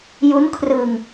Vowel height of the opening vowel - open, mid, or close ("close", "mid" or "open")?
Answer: close